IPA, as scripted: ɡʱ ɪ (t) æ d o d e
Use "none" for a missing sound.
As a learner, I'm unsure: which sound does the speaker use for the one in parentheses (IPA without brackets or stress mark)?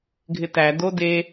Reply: t